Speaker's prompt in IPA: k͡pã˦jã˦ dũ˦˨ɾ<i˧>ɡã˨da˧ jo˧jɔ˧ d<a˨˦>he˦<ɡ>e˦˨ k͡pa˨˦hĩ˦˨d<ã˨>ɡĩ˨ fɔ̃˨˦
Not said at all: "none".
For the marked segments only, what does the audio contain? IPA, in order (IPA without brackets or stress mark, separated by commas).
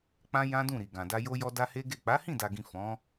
i˨, a˦, ɡ, a˨